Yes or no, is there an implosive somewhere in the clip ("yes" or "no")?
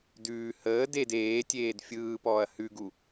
no